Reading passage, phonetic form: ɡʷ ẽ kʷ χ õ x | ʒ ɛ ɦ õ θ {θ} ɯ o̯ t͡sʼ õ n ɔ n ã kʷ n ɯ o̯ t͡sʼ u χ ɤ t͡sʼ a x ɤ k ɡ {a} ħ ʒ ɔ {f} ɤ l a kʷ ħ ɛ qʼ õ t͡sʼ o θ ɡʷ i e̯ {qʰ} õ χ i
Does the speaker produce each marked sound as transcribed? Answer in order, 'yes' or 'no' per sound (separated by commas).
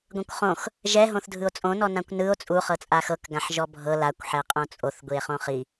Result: no, no, no, no